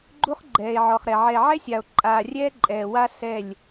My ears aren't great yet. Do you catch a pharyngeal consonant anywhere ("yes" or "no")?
yes